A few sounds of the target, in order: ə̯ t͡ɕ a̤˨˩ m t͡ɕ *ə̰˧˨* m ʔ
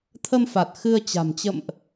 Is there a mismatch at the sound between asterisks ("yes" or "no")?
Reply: no